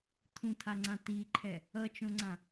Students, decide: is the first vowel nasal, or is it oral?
nasal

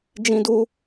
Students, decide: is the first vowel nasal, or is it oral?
nasal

